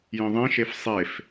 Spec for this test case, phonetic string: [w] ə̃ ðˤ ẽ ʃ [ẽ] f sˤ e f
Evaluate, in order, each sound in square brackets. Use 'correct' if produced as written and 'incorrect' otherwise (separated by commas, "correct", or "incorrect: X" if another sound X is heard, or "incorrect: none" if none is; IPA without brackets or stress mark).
incorrect: j, incorrect: e